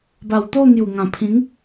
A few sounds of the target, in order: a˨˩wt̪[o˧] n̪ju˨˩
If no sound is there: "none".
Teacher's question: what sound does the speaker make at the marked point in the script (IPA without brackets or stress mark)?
o˥˧